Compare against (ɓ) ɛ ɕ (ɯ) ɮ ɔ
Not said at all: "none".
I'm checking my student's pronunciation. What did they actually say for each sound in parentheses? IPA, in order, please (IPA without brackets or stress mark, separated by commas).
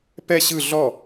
p, ɯ